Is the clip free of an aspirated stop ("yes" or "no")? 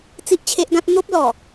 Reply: no